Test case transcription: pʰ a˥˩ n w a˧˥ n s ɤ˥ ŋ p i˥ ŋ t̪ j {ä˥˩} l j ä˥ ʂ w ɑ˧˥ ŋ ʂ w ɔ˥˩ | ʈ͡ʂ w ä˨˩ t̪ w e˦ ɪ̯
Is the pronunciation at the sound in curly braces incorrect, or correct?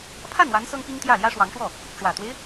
correct